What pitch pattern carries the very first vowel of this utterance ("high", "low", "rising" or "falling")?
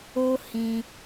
high